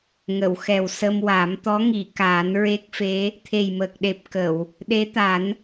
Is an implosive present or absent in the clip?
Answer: present